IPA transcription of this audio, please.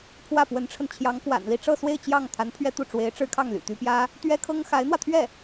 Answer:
pʰ w ä˥˩ p w ə˧˥ n ʈ͡ʂʰ ə˧ n t͡ɕʰ j ɑ˧˥ ŋ k w a̰˨˩ n l i˥˧ ʈ͡ʂ ɤ˥˧ s w e˥˧ ɪ̯ t͡ɕ j ɑ˥˩ ŋ t̪ʰ a˧˥ n pʰ ɥ ɛ˥ t̪ u˥˩ ʈ͡ʂ w e˧˥ ɪ̯ ʈ͡ʂ ɻ̩˥ kʰ ɑ˥˩ ŋ l y̰˨˩ t̪ y˧˥ p j ä˥ | t̪ ɥ ɛ˥ kʰ ɤ˥ ŋ x a˧˥ ɪ̯ n̪ w ä˧ t̪ʰ ɥ ɛ˥˩

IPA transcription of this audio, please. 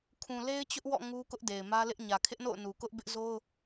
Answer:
kʰ ũ˨ l e˦ ɪ̯ t͡ɕ ʊ˦ ʔ w ɔ̰˦˨ ŋ u˦ k ʊ˦ ʔ d e˨ ɪ̯ m ä˦ l ɪ˦ ʔ ɲ ä˨ kʰ ɪ˦ ʔ n o̰˦˨ ʊ̯ n u˨ k ʊ˦ ʔ b ɪ˦ ʔ z o˦ ʊ̯

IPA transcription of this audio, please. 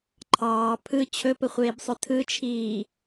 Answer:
ǃʰ ɑː pʰ ɯ t͡ɕʰ ɵ p ə χʷ eː b sˤ ɵ tʰ ɯ t͡ʃʰ iː

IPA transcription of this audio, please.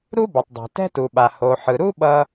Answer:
ɾ u˥ b ʌ˩ tˤ dˤ ɛ̤˩ t ɛ̤˥ t u˩ ɓ a˩ h o˩ ħ ɯ˩ ɾ u˥ ɓ ʌ˥

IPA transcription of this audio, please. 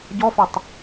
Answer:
ɟ ɔ f ɛ tˤ

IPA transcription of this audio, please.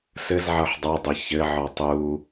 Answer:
s ɘ z ʕ ʌ ħ dˤ ʌ dˤ ɘ ç ɘ ʕ ɔ tˤ u

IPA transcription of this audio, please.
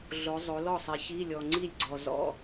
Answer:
ɮ o˨˦ zˤ o˨˦ l ɔ˥˩ sˤ ɛ˨˦ ç i˧˥˧ lʲ ɔ˨ ŋ͡ǀ i˥˩ lʲ ɡ͡ǀ ɔ˨ z ɔ̰˧˥˧

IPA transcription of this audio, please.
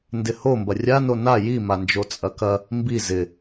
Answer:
n d ɪ h o m b ɐ rʲ a n o n a j i m a n d͡ʒ o t͡sʼ ɐ k ɐ | m b i z ɪ

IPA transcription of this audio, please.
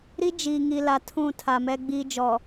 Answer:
ɾ i˦ d͡ʒ i˨ ŋ i˨ l a˨ tʰ ũ˦˨ tʰ a˨ m ɛ˦ ɡ͡b iː˦ d͡ʒ ɔ˨

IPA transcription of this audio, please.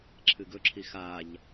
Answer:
ǁʰ ɨ ɡ ɵ ǁʰ i x a ʎ

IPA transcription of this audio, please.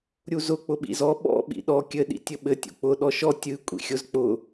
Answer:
ɾʲ u z ʊ k͡p ʊ ɓ ḭ z ɔ ɓ ɔ̰ ɓ ḭ ɗ ɔ kʲ ɘ ɗ ḭ tʲ ɘ ɓ ɘ tʲ ṵ k͡p ʊ ɗ ɔ ʃ ɔ tʲ ɨ kʷʼ ḭ xʲ ʊ z k͡p ʊ

